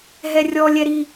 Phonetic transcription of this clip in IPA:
ɦɛrʲɔ lʲɛɾi

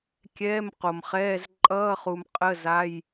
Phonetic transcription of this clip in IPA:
kʲɛː˧˥˧mqo˨mχɛː˧˥˧z ǃʼʌː˧˥˧χu˨m qʼə˧˥˧za˧˥˧j

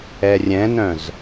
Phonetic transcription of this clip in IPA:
ɛrʲɛ̃nœ̃z

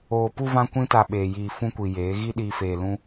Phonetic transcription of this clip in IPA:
oː˨pu˧ vã˦kʷĩ˦ta˧ ɓeː˨ jiː˨ fũ˦kʷi˨ jeː˨˦ ɣi˦ ɗiː˦feː˧ lũ˦

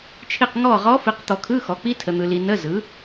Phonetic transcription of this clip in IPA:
t͡ʃʰi˦˨q ŋɔ˦˨ʁɔ˧˥ fi˨qt̪ɔ˨kʰɯ˧˥˧ xɔ˩˥k͡pi˧˥˧ tʰə˨n̪ɯ˨li˨ nə˧˥˧zɯ˩˥

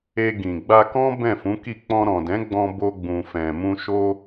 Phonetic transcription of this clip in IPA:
e˧ ɡĩ˨ ɡ͡ba˧kɔ̃˦ bɛ̃˦˨fũ˨˦ki˦˨ k͡pɔ̃˧ɾɔ̃˨dɛ̃˨˦ɡ͡bɔ̃˧ bo˧ɡ͡bũ˨fɛ̃˨mũ˧ ʃo˧

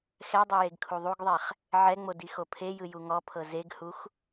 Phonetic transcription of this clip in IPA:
xɛdˤe jeɡkʰuðˤuɡðˤɛχ | ʕɛŋ͡mo dixopʰejɯ juŋɔpʰɤ zeɡhux

